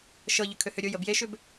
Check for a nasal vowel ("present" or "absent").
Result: absent